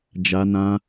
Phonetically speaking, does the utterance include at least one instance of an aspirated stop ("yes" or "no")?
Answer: no